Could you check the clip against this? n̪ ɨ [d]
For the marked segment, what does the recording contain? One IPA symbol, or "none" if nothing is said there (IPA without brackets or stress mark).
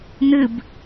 b